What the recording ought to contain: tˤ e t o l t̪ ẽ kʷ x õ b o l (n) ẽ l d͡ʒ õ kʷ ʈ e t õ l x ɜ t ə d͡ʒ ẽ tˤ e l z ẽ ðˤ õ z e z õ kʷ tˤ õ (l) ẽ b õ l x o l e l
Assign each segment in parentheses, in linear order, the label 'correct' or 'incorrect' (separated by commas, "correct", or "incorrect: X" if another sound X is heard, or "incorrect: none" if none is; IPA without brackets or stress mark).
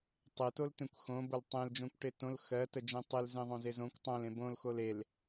incorrect: tˤ, correct